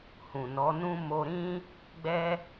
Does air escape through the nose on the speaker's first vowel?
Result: yes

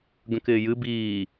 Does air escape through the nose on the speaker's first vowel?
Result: yes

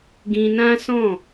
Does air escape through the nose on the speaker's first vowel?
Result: yes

